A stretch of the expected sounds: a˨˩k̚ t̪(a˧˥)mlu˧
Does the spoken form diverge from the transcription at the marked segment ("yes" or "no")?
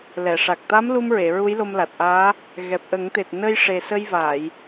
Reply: no